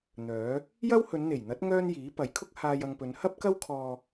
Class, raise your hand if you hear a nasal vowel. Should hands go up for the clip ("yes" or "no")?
no